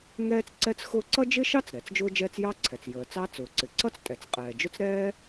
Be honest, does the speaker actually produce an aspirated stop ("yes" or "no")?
yes